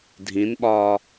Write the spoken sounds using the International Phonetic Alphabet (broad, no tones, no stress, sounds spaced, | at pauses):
dʱ ĩ n ɓ ɒː